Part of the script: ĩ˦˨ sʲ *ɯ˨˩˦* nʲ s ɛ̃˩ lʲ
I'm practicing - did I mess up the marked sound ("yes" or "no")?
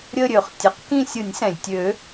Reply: no